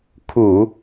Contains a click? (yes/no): no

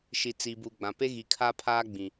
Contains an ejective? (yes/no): no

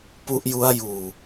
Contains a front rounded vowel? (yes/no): no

